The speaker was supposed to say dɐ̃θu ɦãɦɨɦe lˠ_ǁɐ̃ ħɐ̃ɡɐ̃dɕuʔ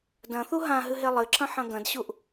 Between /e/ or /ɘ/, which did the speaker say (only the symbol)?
ɘ